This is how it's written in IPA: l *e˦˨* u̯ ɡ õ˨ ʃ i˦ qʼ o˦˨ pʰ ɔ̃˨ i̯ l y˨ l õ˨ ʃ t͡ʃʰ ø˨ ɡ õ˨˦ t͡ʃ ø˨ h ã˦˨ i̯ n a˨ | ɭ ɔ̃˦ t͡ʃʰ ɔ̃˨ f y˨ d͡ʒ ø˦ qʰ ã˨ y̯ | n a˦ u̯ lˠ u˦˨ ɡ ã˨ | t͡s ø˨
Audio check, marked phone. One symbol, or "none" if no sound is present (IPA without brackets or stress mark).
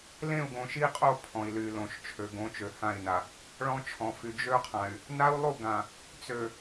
ẽ˦˨